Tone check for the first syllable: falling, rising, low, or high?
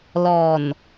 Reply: low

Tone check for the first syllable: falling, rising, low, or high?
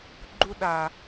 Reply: high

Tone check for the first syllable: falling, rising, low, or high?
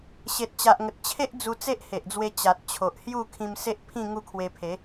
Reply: low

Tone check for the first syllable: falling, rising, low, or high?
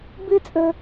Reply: high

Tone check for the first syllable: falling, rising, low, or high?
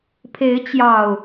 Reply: rising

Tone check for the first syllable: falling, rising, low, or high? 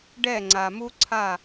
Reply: falling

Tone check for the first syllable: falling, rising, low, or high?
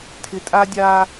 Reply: low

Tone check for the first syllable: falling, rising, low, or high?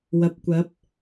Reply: low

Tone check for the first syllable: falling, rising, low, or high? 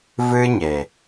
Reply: high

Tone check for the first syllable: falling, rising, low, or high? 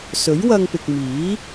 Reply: rising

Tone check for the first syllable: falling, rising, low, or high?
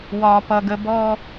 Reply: high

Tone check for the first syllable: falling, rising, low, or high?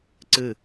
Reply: falling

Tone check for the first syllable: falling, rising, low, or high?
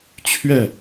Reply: falling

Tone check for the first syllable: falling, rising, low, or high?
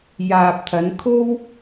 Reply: low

